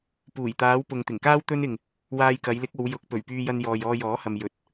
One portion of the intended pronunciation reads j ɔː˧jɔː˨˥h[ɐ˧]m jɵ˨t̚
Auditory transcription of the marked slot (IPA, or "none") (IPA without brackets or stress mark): ɐ˨